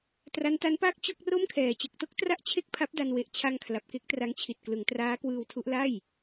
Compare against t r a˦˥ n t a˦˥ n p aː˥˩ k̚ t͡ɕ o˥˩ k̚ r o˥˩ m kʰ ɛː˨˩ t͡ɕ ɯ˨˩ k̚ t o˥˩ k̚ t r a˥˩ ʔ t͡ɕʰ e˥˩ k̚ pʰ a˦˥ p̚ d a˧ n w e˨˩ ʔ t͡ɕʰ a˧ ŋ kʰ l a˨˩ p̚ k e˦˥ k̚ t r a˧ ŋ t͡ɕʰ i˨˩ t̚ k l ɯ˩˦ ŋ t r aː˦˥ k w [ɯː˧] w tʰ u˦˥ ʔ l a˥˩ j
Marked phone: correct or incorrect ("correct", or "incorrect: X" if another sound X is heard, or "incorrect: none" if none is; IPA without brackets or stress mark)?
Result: correct